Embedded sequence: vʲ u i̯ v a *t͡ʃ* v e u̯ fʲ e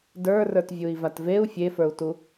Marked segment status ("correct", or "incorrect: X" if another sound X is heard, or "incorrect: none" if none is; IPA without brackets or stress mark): incorrect: t